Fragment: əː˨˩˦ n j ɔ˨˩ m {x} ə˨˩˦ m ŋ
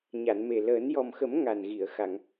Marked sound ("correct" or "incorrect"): correct